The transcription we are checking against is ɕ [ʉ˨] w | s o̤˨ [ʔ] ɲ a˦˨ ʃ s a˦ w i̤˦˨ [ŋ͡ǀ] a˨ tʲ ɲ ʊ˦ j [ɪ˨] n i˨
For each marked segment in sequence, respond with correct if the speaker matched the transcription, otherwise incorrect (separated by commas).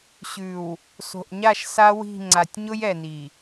correct, correct, correct, incorrect